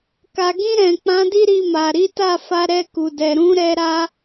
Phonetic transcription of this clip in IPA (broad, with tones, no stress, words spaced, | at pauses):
ka˨ɡĩ˧ ɾɛ̃˨k͡pã˨˦ di˦ɾi˧ma˨ ɾi˨˦ta˦˨fa˧ ɾɛ˧ku˨dɛ˨ɾũ˨˦ ɾɛ˧ɾa˧